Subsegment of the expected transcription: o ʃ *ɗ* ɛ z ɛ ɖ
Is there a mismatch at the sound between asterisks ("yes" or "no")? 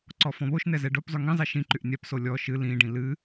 yes